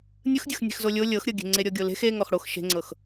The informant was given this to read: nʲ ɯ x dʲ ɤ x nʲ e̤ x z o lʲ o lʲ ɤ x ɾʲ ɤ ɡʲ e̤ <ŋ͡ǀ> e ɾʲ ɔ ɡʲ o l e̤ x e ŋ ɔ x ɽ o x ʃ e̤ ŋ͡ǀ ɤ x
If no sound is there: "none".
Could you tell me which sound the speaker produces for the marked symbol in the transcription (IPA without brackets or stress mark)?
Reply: ŋ͡ǀ